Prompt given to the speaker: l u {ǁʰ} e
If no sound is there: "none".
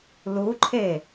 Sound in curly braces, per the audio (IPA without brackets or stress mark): ǃʰ